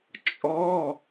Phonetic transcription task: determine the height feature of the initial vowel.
mid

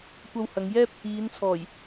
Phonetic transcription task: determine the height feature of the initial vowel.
low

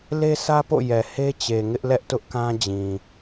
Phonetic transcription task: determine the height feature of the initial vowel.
mid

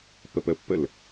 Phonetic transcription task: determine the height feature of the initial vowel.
mid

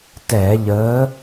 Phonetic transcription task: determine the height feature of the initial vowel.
mid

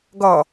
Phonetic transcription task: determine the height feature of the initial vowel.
mid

